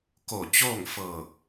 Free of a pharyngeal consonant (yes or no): yes